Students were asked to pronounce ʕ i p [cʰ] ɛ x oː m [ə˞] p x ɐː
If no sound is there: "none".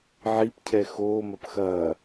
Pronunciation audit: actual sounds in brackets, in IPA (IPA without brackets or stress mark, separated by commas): cʰ, ɐ